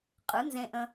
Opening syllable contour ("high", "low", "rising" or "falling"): rising